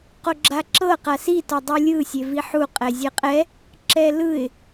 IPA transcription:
q o ɡ͡ǁ a ǁ ɤ q a s i t ɔ dˤ u lʲ ɯ sʲ e v i ħ u qʼ ɛ zʲ ɛ qʼ ɛ | ǁ ɛ l ɯ ɪ̯

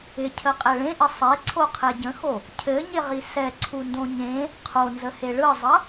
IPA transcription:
ɪ cʰ ə qʼ ɛ ɭ ẽ ʔ ɘ sˤ e ǀʰ o qʰ ɛ ɟ ə̃ x o | cʰ ɘ ɲ ɪ ʁ i s ɛ ǀʰ u n d õ ɲ ẽ | qʰ o n z ə h e ɭ ɯ zˤ ə

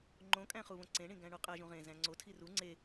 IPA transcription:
ŋ͡ǃ õ kʼ æ̃ χ u β õ ǀ ẽ ɳ ĩ ɡ æ̃ ɳ u qʼ æ ʒ ũ ʁ ẽ z æ̃ ŋ͡ǀ o tʰ i r u ŋ͡ǀ e

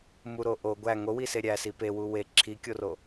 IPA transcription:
m u ɾ o ʔ o ɡʷ æ ŋ o w i s e ɾʲ æ s i p e w u w e ǁʰ i kʲ o r o

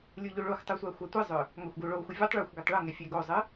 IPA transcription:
lʲ u ʎ u ɭ o xʷ tˤ u sʷ a xʷ a tʷ ɨ zˤ ʏ | ŋ a xʷ ɡ u ɭ o xʷ ɨ vʲ u tˤ ɭ o xʷ ɡ ʏ tˤ ɭ ʊ ŋ ɛ fʲ ɛ ɡ o zˤ ɨ

